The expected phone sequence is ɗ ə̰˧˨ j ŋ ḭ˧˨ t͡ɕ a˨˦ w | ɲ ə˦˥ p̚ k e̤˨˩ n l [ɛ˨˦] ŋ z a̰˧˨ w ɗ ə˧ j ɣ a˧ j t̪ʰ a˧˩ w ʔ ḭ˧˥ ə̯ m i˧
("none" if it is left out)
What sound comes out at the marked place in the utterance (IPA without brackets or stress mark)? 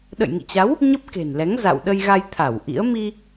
ɛ˨˦